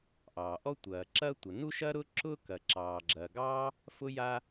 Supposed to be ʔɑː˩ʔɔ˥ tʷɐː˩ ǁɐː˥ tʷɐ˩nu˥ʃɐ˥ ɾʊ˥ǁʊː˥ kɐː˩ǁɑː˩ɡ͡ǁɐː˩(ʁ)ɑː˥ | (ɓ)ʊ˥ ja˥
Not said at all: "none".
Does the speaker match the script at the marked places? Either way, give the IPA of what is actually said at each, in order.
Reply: ɡ, f

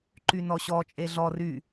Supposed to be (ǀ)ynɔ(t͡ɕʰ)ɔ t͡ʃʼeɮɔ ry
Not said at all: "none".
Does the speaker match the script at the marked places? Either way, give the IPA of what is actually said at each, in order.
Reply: ǃ, ɕ

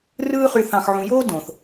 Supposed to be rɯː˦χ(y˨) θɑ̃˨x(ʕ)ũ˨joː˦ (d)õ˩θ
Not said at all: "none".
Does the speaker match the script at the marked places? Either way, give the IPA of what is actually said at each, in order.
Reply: y˨, ʕ, d

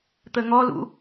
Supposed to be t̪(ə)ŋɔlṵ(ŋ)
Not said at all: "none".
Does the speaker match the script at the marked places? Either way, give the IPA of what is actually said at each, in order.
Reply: ə, none

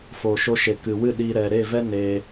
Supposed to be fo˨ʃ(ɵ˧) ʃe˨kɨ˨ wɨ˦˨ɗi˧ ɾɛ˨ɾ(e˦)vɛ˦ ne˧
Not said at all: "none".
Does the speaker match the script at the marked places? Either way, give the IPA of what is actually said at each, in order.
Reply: o˧, e˦˨

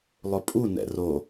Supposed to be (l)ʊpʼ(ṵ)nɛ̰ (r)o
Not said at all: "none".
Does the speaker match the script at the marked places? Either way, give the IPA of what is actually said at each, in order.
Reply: lˠ, u, r

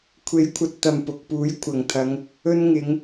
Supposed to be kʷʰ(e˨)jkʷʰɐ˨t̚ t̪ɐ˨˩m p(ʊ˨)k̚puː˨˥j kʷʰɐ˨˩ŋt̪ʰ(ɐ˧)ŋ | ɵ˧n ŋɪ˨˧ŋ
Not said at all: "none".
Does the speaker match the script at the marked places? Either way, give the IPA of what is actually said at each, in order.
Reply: e˨˥, ʊ˨, ɐ˨˧

